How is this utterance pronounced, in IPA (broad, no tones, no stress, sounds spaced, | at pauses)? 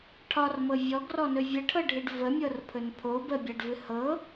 ʈʰ ɒ r m ɤ vʲ ɔ ɡ r ɔ n ɵ vʲ ə ʈʰ ɤ ɖʱ ɨ ɖ v ə mʲ ɤ r pʰ ɵ n pʰ o b ə bʲ a ɖ v ɨ h ɤ